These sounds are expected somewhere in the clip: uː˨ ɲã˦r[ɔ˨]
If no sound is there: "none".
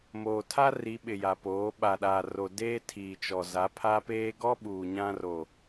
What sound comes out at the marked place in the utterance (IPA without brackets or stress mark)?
o˨